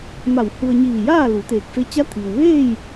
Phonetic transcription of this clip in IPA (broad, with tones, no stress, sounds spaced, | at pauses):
m a˧˩ w h u˧ ə̯ ɲ iː˧˩ j aː˥˨ l u˩˧ t̪ eː˧˩ k̚ f e˧˥ t͡ɕ a˧˥ t̪ʰ iː˩ w ʋ eː˥˨ j